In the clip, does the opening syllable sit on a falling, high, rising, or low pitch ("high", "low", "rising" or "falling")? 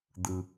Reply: high